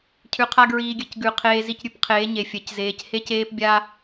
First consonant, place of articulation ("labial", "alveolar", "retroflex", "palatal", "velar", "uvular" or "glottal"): palatal